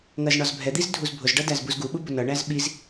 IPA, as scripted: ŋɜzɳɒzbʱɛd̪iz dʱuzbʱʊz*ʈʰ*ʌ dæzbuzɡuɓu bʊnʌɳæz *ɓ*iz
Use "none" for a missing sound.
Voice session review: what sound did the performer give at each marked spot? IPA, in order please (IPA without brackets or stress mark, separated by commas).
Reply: ɖ, ɓ